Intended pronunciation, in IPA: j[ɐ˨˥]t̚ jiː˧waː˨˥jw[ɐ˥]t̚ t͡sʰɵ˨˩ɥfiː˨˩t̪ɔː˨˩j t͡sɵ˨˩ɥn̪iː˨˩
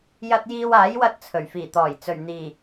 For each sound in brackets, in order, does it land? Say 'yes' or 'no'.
no, no

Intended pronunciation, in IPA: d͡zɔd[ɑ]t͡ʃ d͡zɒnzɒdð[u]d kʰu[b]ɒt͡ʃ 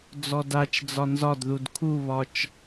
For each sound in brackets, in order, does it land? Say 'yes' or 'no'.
no, yes, no

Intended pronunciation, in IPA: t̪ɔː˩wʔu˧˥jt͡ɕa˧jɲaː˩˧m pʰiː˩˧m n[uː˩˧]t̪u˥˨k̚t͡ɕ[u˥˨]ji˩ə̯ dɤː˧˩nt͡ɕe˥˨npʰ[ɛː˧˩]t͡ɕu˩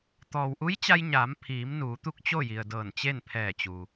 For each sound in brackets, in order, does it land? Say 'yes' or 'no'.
yes, no, yes

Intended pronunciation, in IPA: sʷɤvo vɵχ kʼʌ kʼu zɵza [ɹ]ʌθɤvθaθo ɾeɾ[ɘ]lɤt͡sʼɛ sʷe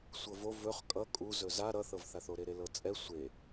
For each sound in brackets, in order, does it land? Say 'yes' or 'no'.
no, no

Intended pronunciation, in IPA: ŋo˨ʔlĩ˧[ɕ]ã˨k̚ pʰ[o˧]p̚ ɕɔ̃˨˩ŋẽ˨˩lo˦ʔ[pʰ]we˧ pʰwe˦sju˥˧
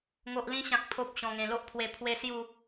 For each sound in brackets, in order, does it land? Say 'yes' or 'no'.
yes, no, yes

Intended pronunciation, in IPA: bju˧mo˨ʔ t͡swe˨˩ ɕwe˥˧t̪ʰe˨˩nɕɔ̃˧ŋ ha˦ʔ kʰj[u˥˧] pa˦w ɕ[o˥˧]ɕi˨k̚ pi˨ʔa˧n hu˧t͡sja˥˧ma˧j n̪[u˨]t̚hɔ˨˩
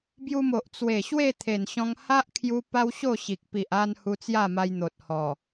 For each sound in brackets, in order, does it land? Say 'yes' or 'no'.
no, yes, no

